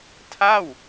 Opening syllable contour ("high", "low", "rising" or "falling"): falling